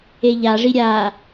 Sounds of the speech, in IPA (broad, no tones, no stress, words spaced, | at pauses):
eʎaʐi ɾʲaː